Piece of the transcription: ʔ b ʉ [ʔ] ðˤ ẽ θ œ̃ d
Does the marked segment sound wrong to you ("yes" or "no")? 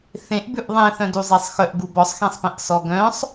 no